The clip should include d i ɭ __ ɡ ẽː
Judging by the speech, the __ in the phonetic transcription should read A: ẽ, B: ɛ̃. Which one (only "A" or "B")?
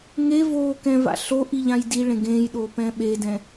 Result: A